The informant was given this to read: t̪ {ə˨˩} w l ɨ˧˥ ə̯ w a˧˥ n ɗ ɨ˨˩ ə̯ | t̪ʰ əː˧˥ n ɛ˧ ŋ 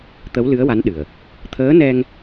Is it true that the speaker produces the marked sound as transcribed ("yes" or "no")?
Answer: no